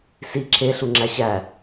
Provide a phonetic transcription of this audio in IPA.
s i ǁʰ e ɬ u ŋ͡ǁ æ ɕ æ

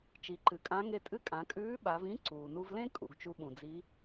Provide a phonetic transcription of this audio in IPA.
t͡ʃ i˩˧ ǃ ɨ˩˧ kʼ ã˧˥ ŋ e˧ tʼ ɨ˧˥ kʼ ã˩˧ kʼ ʉː˧˥ ɓ a˩˧ v ĩ˧˥ ǀ uː˩ n u˧ v l ẽ˥ kʼ ṵ˩ ɡ t͡ʃ u˧ ɓ ũ˩ d͡z i˧˥

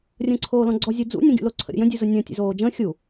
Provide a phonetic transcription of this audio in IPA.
rʲ ə̃ː ǀʰ oː l ɔ̃ ɡ͡ǀ ɔ zʲ u d͡z ṵ nʲ õ ɡʲ ṵ l o ǀʰ ə̰ ɾʲ ə̰ j ə̃ dʲ u z ʊ nʲ ɔ̃ tʲ ṵ z oː d͡ʒ ə̃ː xʲ u

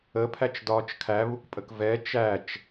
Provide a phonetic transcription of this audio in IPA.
ə pʰ æ t͡ʃ d ɒː t͡ʃ kʰ æ β u k pʼ ə k v ɛ t͡ʃ æ t͡ʃ

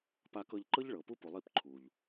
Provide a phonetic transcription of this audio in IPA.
p a˧ k ɤ˧ ʎ ǃ ɤ˦ ʎ ɭ ɤ˨ p u˦ p u˨ lˠ i˦˨ p ǃʰ u˨ ʎ

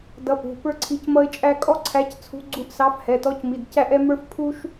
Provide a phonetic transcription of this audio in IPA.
d ʌ˧˥ p ṳ˩˧˩ p ə˞˥ ǀʰ i˧˥ c m ʌ˥ ɪ̯ t͡ʃʼ æ˥ kʼ ɔ˥ ǀʰ æ˧˥ c t͡sʰ ṳ˧˥ ɡ͡ǀ u˧˥ ʔ s ɑ˧˥ f h ɛ˩˧˩ t ɔ˧˥ c m i˩˧˩ d c æ˥ ʔ ɛ˥ m ə˞˥ f pʰ u˥ ʃ

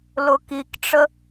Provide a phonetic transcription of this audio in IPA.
l ʊ k i k ʈ͡ʂ ə

